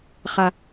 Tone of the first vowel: low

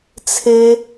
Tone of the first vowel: high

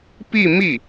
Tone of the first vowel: falling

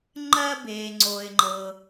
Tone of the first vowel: high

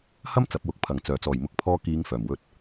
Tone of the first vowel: high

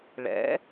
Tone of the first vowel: rising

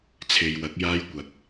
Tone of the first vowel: low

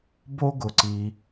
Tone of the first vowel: high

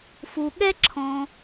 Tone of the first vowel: low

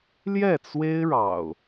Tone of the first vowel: falling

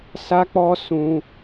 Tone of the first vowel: high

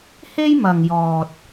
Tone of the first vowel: high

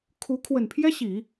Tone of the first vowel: rising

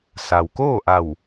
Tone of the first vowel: low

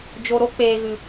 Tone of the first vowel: low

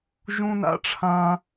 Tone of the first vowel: high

